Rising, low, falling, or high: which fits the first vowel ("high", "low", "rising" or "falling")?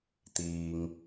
low